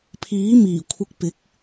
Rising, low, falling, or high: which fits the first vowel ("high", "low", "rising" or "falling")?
rising